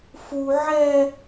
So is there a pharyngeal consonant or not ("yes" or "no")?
yes